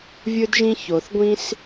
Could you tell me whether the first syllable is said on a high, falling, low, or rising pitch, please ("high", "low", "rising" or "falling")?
high